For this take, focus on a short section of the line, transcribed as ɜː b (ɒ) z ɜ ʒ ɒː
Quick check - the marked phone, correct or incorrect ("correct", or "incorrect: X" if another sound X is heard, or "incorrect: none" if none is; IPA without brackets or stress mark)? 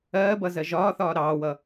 incorrect: ʌ